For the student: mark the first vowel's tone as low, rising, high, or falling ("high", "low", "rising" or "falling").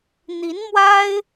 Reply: rising